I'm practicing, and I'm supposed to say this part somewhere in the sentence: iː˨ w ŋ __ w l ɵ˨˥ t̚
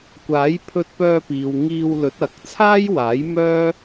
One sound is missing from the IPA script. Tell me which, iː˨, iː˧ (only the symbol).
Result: iː˧